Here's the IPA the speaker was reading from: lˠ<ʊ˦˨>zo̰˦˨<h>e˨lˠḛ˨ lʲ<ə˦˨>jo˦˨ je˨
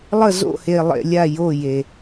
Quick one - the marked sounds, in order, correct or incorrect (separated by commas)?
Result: incorrect, correct, incorrect